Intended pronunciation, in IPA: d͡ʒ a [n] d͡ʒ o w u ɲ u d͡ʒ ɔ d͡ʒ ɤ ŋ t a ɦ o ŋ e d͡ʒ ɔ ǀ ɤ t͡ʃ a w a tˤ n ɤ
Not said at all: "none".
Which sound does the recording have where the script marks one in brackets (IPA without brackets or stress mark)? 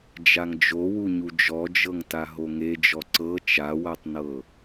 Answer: ŋ